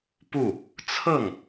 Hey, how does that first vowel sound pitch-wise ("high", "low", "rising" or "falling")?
falling